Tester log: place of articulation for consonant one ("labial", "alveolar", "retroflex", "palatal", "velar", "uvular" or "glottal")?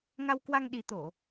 velar